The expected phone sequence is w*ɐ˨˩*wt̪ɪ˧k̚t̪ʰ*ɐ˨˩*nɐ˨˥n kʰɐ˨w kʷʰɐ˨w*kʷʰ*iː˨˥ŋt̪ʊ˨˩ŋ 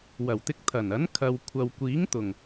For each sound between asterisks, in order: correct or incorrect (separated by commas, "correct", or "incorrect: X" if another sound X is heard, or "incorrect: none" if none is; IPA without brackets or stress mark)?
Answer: correct, correct, incorrect: kʷ